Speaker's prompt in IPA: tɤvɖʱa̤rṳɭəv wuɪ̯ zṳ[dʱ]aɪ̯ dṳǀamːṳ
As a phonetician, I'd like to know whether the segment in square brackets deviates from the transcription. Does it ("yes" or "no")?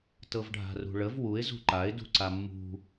yes